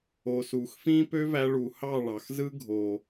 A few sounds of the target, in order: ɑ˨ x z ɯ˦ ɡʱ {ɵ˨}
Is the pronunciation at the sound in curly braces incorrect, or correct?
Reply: incorrect